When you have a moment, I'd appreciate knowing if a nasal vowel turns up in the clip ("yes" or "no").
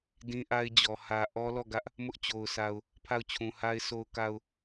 yes